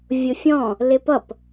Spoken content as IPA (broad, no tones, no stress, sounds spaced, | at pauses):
vʲ ʊ fʲ ɔ̃ | l ɪ p ʌ p